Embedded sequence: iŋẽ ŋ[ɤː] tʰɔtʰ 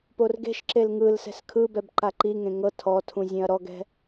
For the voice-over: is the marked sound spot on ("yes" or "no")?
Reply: no